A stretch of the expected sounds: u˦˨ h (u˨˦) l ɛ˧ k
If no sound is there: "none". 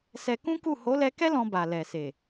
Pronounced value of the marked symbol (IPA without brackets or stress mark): o˨˦